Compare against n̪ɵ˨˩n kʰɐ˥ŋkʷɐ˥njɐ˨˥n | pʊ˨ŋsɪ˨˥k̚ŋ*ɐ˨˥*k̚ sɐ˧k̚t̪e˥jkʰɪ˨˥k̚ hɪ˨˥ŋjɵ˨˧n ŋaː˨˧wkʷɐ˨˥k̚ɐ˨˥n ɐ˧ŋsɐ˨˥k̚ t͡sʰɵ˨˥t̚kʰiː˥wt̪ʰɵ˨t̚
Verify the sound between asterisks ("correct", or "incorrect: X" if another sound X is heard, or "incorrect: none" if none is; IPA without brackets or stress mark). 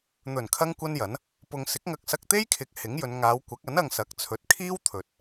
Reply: incorrect: ɐ˧